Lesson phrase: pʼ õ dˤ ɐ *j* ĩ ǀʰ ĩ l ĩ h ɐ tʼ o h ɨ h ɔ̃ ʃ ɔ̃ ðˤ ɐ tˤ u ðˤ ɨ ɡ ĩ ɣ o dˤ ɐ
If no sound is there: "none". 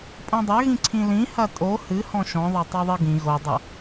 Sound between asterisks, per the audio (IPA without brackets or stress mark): ɣ